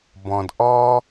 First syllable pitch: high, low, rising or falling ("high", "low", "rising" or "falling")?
low